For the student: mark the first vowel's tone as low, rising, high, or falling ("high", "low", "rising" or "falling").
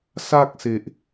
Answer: high